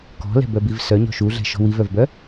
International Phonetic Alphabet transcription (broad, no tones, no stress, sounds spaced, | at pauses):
k ɔ̤ l ɛ̤ b œ b i v s œ ɲ ɔ̤ ʃ u ɮ ɛ̤ ʃ ɔ̤ w i v œ v b œ